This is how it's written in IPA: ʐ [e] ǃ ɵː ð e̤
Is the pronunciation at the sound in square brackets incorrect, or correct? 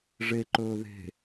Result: correct